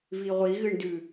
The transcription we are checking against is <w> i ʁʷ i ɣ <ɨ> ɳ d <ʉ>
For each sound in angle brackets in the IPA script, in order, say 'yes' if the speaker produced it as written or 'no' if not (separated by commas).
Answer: no, yes, yes